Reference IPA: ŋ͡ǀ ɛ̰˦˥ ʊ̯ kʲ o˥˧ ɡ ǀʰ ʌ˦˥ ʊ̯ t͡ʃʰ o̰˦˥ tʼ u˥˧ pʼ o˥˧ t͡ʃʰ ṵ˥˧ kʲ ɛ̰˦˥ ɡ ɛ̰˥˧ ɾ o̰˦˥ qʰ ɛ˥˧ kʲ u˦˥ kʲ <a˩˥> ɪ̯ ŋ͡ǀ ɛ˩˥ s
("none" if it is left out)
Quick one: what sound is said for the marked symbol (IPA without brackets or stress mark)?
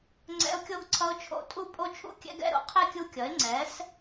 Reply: ʌ˩˥